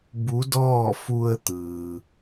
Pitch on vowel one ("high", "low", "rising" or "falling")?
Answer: rising